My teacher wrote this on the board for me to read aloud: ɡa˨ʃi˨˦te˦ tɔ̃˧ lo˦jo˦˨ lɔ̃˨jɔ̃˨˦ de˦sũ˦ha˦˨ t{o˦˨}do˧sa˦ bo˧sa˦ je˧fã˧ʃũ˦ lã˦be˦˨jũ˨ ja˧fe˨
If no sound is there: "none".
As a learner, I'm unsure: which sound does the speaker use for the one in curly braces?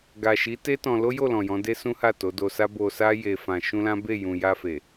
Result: o˨˦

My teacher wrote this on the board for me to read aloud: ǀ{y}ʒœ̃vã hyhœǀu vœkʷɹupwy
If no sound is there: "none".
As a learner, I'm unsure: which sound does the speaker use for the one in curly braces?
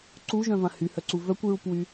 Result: u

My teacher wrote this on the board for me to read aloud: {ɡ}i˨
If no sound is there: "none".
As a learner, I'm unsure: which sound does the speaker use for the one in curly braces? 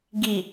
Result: ɡ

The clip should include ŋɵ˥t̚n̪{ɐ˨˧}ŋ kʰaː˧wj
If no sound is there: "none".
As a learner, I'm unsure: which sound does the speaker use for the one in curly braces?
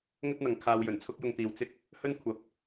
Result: ɐ˨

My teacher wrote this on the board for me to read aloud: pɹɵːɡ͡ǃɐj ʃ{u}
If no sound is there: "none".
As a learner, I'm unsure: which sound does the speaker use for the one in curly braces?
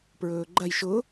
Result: ʊ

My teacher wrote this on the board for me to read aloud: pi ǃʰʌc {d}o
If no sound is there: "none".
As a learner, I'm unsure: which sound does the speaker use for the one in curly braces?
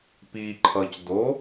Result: d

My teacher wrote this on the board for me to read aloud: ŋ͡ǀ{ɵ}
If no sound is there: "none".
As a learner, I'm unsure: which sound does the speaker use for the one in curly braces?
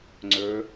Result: ɵ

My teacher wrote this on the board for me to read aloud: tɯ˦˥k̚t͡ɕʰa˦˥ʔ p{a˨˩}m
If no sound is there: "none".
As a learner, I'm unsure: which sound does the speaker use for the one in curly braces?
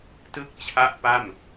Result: a˥˩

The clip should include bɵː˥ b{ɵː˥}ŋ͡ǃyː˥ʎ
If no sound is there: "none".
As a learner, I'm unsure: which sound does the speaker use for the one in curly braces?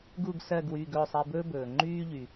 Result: ɵː˩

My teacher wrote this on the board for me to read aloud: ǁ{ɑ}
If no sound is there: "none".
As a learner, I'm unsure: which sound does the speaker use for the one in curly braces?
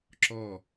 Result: ɔ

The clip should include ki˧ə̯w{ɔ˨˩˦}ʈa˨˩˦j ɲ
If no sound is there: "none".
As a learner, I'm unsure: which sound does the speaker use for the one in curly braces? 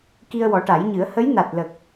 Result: ɔ˨˩˦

